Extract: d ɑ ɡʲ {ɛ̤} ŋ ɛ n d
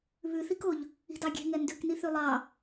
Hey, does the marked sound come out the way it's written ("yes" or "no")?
no